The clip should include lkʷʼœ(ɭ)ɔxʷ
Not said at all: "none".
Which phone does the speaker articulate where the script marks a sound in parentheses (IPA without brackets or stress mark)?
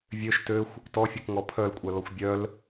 l